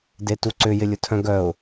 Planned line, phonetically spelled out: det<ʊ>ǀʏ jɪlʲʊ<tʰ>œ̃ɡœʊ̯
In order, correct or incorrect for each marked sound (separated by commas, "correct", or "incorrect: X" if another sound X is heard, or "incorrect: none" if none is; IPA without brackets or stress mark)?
incorrect: u, correct